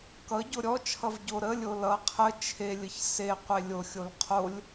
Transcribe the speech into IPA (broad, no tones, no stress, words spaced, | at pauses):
kʌ ɟoɾʲɔt͡ʃʰʌv ɟoɾəlʲo lʌ qʰə t͡ʃʰelʲəç seqʷe lʲoxʲol qʰolʲ